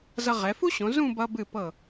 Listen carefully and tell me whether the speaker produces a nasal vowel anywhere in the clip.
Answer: yes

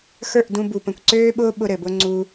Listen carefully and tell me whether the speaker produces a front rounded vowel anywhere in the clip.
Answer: yes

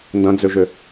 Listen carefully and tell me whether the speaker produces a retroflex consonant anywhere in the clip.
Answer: no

